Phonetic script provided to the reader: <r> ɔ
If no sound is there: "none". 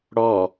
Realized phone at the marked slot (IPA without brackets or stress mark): ɽ